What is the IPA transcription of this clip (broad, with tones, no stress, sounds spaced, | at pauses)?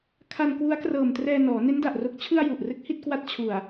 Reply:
kʰ a˧ n k w u˦˥ a̯ k r ɤː˨˩ m t r ɛː˧ n ɔː˩˦ n e˦˥ n d a˨˩ ʔ r o˨˩ k̚ t͡ɕʰ ɯ˧ a̯ j u˨˩ ʔ r ɯ˦˥ k̚ h i˥˩ t̚ k w a˦˥ t̚ t͡ɕʰ u˨˩ a̯